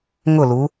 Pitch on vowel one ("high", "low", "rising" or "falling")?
falling